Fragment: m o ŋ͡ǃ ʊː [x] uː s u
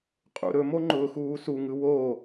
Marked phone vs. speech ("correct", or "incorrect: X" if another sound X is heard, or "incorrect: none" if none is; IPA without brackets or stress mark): correct